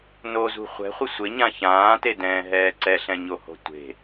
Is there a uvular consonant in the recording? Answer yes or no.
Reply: yes